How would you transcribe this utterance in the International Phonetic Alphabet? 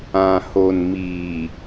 ã˨ho˨n miː˨

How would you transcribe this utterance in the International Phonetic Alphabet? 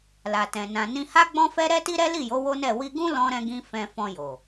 la˨tɛ̃˨ nã˨nĩ˧ ha˦ɡ͡bɔ̃˦fɛ˦ ɾɛ˦ti˦ɾɛ˦ li˦˨jo˨˦ wo˦nɛ˦˨ wi˧ɡũ˦ lɔ̃˧ɾɛ̃˧ɡĩ˧ fɛ̃˧fɔ̃˧jo˨

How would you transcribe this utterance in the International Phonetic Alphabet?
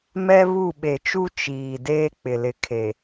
mɛ˦βu˦˨ ɓe˨t͡ʃu˦ t͡ʃiː˨ deː˦k͡pɪ˨ lɪ˨kʰe˨

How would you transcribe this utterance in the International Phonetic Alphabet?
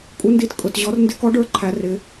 kʼu˧˥ndi˧˥tkʼʊ˧˩˧tʑɔ˧˥r ndɪ˧˥kɔ˧˥ɖə˞˧˥ ǃʰæ˧˥rɪ˧˥

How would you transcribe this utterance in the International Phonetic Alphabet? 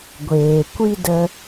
ɡʷeː˨kʷi˦də˧

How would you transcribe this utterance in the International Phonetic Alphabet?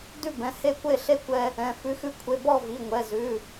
dʉ˥˩bɛ̃˩˧˩ he˥˩kʷe˥˩ ɬe˥˩kʷɛ˧ | ɛ̃˩˧˩ fʉ˩˧˩xʉ˧kʷʰe˩˧˩ bɔ˥˩vi˩˧˩ ŋʷɛ˩˧˩zʉ˩˧˩

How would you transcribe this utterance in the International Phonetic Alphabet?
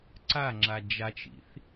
ǀaŋ͡ǁa d͡ʒat͡ʃḭθ

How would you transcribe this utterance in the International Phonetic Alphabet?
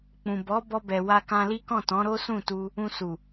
k͡pũ˨bɔ˨˦ bɔ˧bɛ˨wa˧kã˧ li˦kɔ̃˦˨tɔ̃˨˦ ɾo˦sũ˦˨tu˧ | ũ˧su˨

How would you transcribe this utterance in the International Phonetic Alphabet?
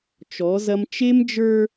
t͡ʃɔ˨˦zɐ˦m t͡ʃe˦md͡ʒə˞˦

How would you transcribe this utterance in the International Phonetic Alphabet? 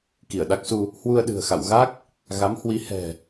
ki˧˩ə̯ɗa˦˥k̚su˧ | hwu˧ə̯ɗɨ̤˨˩ə̯xa̰˧˨w ɣa˦˥k̚ | ɣa˨˦mhwi˨˦hɛ̤˨˩

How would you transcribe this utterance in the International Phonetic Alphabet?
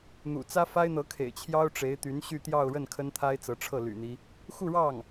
n̪ṵ˨˩t͡sä˥ fa˥ɪ̯n̪ɤ˧˥kʰḛ˨˩ɪ̯ t͡ɕʰjɑ˥ʊ̯ʈ͡ʂe˧˥ɪ̯t̪y˧˥n ɕy˥˧t̪jɑ˥˧ʊ̯ɻə˥˩n kʰə˥nt̪ʰa˥ɪ̯t͡sɤ˧˥ʈ͡ʂʰɤ˥˩ ly̰˨˩n̪i˦ | xu˥˧ɻɑ˥˩ŋ

